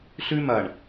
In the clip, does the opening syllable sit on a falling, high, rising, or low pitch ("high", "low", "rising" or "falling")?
high